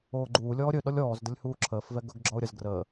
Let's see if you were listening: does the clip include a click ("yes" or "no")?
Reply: yes